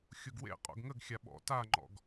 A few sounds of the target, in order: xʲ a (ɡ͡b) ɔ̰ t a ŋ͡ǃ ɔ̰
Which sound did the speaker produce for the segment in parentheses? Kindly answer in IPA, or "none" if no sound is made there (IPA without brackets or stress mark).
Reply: ɓ